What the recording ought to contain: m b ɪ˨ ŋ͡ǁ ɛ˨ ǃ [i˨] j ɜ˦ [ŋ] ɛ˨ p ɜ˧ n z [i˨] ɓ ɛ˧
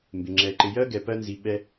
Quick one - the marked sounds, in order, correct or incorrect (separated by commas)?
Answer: incorrect, incorrect, correct